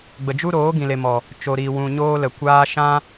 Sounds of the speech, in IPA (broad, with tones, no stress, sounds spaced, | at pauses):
ɡ͡b ə˨ d͡ʒ u˦ ɾ oː˨˦ ɡ ĩ˨ l e˨ m ɔ˨ | t͡ʃ o˨ ɾ i˨ w ũ˨ ɲ oː˦ l ə˨ kʷ aː˦ ʃ ã˦